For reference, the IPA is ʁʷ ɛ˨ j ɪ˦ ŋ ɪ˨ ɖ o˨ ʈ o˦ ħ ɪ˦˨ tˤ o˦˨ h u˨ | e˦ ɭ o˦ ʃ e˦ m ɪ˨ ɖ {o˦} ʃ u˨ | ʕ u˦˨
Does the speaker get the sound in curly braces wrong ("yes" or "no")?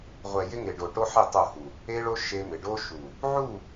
no